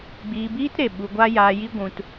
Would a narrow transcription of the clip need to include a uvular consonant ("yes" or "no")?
no